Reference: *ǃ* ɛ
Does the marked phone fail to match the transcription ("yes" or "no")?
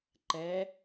no